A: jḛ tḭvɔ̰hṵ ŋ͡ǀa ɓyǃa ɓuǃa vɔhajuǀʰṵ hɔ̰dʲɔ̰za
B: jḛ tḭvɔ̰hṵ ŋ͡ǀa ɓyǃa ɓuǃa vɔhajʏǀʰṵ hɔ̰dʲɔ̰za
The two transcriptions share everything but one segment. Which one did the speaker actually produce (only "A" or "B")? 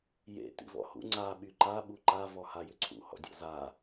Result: B